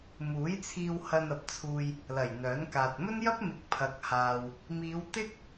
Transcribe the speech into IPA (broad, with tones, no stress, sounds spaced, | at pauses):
m uː˨˥ j t͡sʰ iː˧ w h ɐ˧ n ɐ˨˥ p̚ t͡sʰ uː˧ j | l ɐ˨˩ j n̪ œː˨˥ n k aː˨ t̚ m ɵ˥ n j ɐ˥ p̚ m ɪ˨˥ k̚ pʰ ɐ˨ k̚ h aː˨ w | m iː˨˧ w t̪ ɪ˥ k̚